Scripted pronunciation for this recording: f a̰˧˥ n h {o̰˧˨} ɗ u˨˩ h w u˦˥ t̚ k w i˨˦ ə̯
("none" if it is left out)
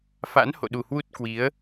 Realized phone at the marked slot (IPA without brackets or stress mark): o̰˧˨